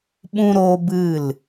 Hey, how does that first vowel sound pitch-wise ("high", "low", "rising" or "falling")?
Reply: high